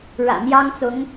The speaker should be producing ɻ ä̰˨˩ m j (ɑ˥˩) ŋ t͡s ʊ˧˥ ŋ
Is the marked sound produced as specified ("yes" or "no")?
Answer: no